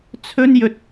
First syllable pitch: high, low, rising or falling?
high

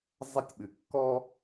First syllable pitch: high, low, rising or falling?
high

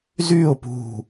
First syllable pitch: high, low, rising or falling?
falling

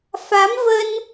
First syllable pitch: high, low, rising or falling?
rising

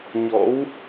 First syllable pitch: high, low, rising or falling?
rising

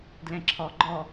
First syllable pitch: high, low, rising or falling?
low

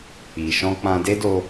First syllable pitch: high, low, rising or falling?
low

